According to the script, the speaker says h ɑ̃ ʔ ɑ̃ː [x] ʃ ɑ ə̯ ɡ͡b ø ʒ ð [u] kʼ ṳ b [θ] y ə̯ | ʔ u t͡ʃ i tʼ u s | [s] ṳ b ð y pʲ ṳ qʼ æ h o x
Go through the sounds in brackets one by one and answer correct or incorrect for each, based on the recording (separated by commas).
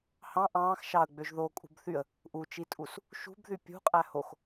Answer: correct, incorrect, correct, incorrect